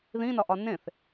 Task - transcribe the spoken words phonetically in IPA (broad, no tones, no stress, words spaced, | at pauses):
ðĩnɒʔɒ nẽθ